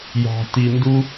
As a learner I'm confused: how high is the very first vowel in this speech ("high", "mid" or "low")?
low